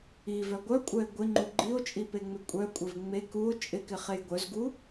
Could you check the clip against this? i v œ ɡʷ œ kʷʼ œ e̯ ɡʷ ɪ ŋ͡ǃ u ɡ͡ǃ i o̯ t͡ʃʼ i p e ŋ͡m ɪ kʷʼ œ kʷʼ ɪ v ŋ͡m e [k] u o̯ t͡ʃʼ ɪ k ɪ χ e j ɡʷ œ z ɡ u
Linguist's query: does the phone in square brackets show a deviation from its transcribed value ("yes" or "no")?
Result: no